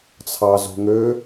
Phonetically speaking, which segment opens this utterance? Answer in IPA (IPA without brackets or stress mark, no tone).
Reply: t͡sʰ